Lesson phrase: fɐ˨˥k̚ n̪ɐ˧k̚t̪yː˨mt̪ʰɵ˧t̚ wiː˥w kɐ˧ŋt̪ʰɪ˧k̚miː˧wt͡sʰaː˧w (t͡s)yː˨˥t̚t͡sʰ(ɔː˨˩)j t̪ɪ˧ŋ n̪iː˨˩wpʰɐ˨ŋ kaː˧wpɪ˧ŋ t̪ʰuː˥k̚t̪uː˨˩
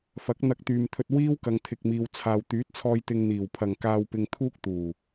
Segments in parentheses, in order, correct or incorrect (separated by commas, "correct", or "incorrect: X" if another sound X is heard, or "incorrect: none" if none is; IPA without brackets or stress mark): incorrect: t̪, incorrect: ɔː˧